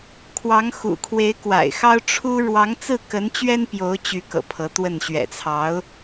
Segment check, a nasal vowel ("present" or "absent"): absent